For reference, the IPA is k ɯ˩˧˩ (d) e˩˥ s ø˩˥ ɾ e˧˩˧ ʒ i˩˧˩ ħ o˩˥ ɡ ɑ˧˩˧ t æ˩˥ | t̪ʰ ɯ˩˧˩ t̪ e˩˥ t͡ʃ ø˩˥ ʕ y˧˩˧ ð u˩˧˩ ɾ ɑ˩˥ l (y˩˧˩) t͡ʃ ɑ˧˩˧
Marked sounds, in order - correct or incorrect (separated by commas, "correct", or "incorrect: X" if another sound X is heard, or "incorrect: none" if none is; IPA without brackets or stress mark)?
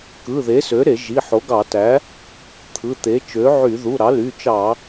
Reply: incorrect: ð, correct